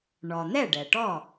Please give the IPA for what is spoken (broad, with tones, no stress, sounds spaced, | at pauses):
ɳ ɔ˩ n̪ ɛ˥˩ ɖ ɛ˩ ʈ ɔ˥˩